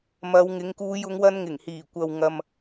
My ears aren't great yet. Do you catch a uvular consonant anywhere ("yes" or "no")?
no